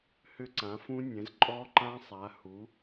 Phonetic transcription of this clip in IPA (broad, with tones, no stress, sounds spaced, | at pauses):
h ʏ˦˥ ǀ ã˩˥ f ũ˦˥ nʲ ɛ̃˩˥ z ǃʼ ɔ˦˥ ǃ ã˦˥ sˤ a˩˥ h u˩˥